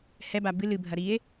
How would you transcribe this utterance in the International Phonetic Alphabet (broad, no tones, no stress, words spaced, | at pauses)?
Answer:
hɛba bɨ lɨbʱɐ ɾie̯